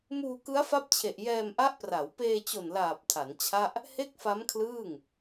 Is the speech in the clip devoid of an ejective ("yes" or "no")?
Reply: yes